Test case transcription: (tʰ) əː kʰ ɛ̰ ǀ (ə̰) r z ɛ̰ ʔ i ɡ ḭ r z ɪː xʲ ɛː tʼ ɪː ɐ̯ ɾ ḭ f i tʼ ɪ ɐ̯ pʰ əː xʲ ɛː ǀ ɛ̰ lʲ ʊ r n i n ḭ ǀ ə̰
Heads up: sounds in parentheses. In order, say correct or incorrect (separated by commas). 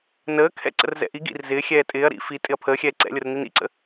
incorrect, correct